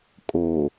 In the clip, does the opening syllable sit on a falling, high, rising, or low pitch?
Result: low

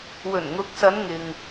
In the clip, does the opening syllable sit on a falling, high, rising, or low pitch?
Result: low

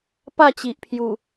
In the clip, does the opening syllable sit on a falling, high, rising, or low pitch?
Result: falling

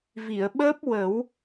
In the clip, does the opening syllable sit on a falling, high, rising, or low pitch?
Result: low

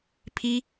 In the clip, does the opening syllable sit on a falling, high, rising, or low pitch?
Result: high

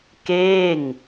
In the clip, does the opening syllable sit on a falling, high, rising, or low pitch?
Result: falling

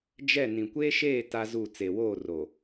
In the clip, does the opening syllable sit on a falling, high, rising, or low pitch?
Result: falling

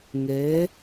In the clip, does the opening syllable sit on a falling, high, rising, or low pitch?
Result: rising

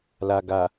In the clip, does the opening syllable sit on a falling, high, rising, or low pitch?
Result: low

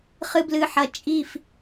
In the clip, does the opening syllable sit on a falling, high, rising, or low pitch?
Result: low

